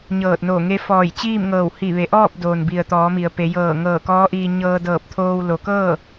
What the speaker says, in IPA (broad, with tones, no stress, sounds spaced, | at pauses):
ɲ ɤː˧˩ t̚ n oː˧˩ ŋ e˧˥ f ɔː˧˩ j t͡ɕ iː˥˨ m ŋ ɤː˧˩ w h i˧˩ ʋ e˩˧ ʔ ɔː˥˨ p̚ d oː˩ n b i˩ ə̯ t̪ ɔː˩˧ m i˩ ə̯ p e˩˧ j ɤː˧˩ ŋ ɤː˧˩ k ɔː˧˥ ʔ iː˧ ɲ ɤː˧ d ɤː˧˩ p̚ t̪ʰ oː˧ w l o˩˧ k ɤː˥˨